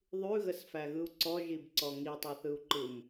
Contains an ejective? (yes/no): no